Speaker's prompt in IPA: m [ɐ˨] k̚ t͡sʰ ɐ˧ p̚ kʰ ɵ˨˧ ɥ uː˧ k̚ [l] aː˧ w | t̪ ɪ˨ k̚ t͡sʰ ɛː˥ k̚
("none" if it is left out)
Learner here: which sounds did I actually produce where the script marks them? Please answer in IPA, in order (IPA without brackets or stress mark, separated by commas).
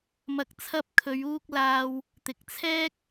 ɐ˨˥, l